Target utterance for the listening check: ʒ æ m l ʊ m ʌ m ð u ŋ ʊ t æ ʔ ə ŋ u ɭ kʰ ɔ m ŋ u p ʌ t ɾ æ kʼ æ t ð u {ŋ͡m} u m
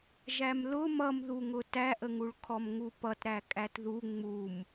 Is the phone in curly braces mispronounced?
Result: no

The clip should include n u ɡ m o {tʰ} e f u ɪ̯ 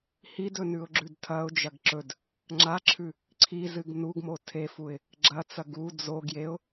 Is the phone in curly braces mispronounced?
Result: no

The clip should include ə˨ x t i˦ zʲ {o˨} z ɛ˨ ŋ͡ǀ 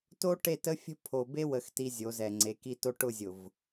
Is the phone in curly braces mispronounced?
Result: yes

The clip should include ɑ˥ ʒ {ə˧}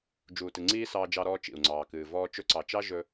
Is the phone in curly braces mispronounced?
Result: yes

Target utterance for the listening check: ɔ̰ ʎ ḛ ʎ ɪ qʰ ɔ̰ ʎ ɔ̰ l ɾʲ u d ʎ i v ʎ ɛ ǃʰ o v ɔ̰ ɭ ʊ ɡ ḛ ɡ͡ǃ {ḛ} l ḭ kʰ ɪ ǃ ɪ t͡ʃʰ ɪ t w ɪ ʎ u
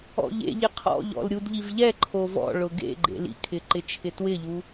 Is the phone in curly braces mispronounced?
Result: no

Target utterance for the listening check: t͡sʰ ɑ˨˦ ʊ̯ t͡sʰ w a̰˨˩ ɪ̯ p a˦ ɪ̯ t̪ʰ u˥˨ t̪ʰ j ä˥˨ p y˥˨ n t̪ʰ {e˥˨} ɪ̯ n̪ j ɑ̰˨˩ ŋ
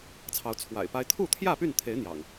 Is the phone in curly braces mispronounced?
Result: yes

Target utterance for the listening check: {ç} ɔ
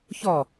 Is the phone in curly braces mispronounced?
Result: no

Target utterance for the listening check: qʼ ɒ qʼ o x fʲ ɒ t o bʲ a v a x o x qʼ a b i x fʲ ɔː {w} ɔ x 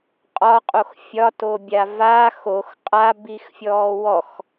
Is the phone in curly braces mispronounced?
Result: no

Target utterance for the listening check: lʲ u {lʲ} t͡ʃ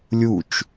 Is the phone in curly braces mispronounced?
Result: yes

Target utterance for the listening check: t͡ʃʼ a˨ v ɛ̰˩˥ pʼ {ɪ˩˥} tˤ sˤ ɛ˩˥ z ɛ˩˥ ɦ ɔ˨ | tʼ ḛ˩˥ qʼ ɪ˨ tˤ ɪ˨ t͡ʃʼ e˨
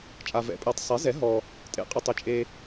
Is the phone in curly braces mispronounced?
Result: yes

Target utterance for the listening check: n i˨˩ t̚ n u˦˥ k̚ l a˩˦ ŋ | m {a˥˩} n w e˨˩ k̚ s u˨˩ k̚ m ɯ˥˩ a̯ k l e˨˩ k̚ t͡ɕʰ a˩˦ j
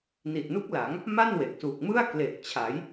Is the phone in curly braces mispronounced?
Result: no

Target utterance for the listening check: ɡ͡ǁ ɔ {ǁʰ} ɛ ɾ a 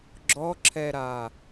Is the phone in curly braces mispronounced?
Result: no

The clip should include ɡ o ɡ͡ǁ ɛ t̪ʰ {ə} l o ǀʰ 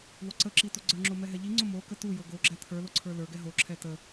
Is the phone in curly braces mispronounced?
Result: yes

